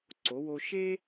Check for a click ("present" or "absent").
present